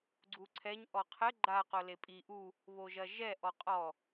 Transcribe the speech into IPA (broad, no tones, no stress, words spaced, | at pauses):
ɡ͡ǀuǀʰɛɲ ʔɔqʰɘ ɡ͡ǃa qolepʼi ʔu | βoʒɐʒɛ ʔɔqʼɔ